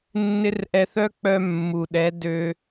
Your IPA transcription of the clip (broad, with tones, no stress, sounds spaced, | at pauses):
nː ɪ˦ r ʔ ɛ˧ θ œ˦ k͡p œ˧ mː u˨ ɗ ɛ˨˦ d ø˦